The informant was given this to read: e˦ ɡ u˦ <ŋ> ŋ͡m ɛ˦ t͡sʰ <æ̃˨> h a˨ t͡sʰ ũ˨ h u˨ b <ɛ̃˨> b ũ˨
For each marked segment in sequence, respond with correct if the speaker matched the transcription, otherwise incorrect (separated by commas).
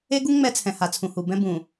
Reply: correct, incorrect, incorrect